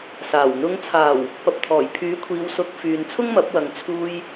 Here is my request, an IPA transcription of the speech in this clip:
s aː˨˩ w n̪ ʊ˨˧ ŋ t͡sʰ aː˨˩ w | p ɐ˨ p̚ t̪ʰ ɔː˨˩ j pʰ yː˨˥ kʷʰ iː˨˧ w s ʊ˨˥ k̚ f yː˨ n t͡sʰ ʊ˥ ŋ m ɐ˨˥ p̚ w ɐ˨˧ ŋ t͡sʰ uː˧ j

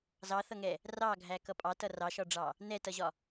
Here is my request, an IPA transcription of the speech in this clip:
z ɑ θ ʌ ŋ ɛ | r ɑ ɡʱ æ k ʌ pʼ ɑ t ʌ r ɑ ʃ ɒ ɖ͡ʐ ɑ | n ɛ t ʌ ʑ ɒ

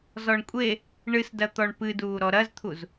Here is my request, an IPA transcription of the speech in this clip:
z ɔ ɳ kʷʼ e | ɳ ɨ s d ɐ t̪ ɔ ɳ p ɨ d uː ɾ ɔ ɾ ɐ z t̪ʰ u z

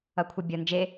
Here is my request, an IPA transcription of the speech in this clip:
ʌ kʷʰ ʌ bʲ ʌ n d͡ʒ e

